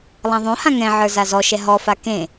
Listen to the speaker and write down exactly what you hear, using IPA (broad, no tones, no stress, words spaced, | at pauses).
lˠãðˤõhã ŋɛ̃ʕə˞ zazɔʃɛ ɦɔfa kẽ